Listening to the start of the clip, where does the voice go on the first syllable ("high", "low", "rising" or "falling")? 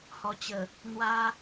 low